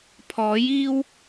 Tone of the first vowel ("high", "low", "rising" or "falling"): rising